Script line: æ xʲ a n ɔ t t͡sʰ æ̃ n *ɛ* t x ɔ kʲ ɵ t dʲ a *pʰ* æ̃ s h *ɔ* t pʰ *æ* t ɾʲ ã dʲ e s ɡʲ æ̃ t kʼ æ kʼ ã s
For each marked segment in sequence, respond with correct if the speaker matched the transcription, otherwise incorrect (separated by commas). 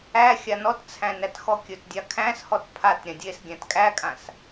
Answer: incorrect, incorrect, correct, incorrect